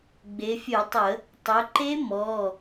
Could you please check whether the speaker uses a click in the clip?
yes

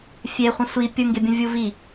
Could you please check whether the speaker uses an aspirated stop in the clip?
no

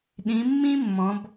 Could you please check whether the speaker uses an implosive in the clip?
yes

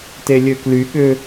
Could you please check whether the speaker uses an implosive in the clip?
yes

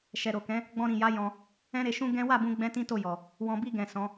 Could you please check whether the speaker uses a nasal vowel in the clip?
yes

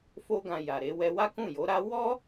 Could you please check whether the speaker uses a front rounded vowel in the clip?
no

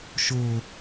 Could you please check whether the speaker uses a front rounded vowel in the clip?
no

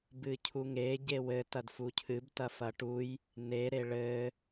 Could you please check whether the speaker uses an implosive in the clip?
no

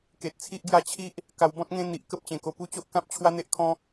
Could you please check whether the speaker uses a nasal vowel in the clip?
yes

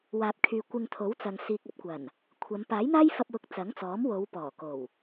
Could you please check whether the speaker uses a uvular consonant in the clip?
no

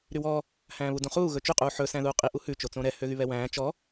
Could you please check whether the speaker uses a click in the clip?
no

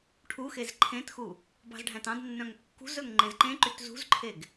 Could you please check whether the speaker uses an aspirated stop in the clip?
yes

